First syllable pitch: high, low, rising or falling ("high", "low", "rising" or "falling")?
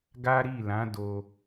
high